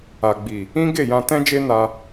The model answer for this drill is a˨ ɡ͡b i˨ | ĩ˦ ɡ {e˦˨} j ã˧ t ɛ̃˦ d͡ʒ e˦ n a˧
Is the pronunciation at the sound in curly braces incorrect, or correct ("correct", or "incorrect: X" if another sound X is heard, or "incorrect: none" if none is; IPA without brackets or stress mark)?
correct